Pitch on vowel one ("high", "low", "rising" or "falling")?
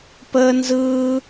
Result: high